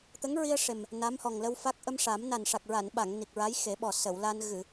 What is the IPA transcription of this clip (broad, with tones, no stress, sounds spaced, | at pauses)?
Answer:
t̪ ə˧˥ ŋ ɹ i˧ ə̯ ʂ e˨˩ m | n a˧˥ m h ɔ˨˩ ŋ l ə˧ w f a˦˥ k̚ ʔ ə˧ m ʂ a˨˩˦ m n a˨˩ n ʂ a˨˩ k̚ ɹ a˨˩˨ n ɓ a˨˩˨ ŋ n i˨˩ k̚ ɹ a˧˥ j x e˨˩˦ ɓ ɔ˨˩ s ə˨˩˨ w l a˧ n ɣ ɨ˨˩˨